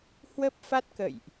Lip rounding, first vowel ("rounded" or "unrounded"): unrounded